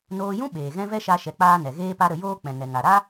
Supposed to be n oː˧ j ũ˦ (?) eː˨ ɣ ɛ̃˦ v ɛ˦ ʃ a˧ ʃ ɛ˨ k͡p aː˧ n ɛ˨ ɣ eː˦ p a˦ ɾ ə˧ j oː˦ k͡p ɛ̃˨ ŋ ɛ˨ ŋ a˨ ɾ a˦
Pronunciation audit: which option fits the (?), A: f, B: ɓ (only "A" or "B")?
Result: B